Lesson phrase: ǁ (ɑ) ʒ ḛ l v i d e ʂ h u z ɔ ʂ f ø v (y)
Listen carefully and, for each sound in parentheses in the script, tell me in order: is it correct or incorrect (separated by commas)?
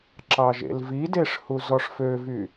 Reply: correct, correct